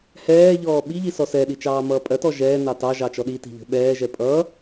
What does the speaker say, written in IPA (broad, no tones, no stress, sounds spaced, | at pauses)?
h ɛː ʎ ɔː ɓ i ʎ i s ɔ s ɛ ɗ i t͡ʃ ɑː m ʌː pʼ ɜ t ɔ ʒ ɛː n ɑ t ɑ ʒ ɑ t͡ʃ ɔ ɗ i t i̤ ʎ ə̤ ɓ ɛː ʒ ɛ pʼ ʌː